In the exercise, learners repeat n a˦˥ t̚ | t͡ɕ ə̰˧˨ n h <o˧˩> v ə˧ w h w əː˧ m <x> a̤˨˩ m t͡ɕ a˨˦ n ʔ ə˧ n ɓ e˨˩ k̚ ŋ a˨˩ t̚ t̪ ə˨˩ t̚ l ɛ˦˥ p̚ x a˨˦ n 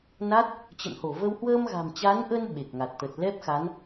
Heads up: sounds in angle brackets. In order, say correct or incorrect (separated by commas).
correct, incorrect